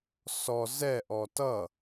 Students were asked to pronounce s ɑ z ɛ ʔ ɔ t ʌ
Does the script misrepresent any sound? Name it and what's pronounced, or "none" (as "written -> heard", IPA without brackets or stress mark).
ɑ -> ɔ